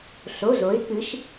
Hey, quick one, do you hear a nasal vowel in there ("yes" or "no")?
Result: no